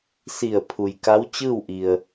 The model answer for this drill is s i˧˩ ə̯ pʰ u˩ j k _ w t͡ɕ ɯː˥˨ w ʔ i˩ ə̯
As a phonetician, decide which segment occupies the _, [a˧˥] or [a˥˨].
a˧˥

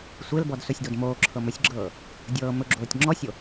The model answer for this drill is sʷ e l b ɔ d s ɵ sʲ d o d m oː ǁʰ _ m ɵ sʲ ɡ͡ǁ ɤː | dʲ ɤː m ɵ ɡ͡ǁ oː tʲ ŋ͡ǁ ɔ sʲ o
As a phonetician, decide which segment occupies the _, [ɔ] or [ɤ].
ɤ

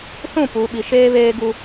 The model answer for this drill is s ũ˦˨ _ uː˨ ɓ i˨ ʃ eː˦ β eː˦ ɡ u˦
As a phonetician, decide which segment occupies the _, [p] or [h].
p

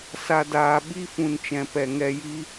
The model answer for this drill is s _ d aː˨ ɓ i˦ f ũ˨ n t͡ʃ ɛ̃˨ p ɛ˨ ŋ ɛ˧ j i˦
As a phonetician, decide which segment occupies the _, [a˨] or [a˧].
a˨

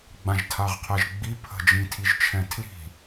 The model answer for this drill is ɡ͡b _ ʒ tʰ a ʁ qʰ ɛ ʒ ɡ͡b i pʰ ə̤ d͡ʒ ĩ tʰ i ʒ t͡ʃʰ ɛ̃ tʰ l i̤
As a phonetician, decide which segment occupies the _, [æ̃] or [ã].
ã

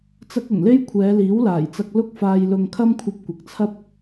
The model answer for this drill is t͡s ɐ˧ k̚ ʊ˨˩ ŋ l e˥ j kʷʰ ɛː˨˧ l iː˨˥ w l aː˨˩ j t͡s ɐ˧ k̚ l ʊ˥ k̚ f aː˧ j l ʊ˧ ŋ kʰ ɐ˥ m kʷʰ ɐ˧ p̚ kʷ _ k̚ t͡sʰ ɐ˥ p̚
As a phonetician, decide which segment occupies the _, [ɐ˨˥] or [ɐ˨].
ɐ˨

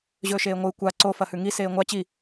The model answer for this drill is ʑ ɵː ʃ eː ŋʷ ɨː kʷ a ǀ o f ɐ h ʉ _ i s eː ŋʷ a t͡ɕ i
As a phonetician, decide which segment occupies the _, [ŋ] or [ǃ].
ŋ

